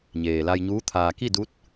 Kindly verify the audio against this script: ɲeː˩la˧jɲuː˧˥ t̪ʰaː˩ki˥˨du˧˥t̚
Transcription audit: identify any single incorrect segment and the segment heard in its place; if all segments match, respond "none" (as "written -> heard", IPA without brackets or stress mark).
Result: none